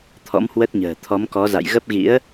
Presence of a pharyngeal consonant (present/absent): absent